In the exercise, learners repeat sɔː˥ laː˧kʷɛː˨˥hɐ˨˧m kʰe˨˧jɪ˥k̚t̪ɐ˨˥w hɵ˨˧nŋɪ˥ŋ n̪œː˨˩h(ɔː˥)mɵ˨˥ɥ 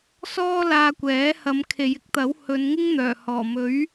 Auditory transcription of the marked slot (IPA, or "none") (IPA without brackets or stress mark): ɔː˨˩